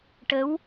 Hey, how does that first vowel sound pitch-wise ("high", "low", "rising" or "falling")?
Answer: rising